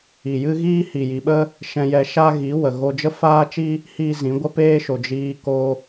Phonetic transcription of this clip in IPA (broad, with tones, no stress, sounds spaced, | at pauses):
i˨ j ɨ˦ ɣ iː˦ h i˨ j i˨ ɓ ə˦ | ʃ ɛ̃˧ j ɛ˧ ʃ a˦ ɣ i˨˦ w ə˨ ɣ o˧ d͡ʒ ə˦ f aː˦ t͡ʃ i˦ | h iː˦ z ĩ˨˦ ɡʷ ə˦ p eː˦ ʃ o˨ d͡ʒ iː˧ k o˧